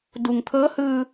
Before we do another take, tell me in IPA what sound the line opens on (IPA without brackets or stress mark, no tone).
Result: d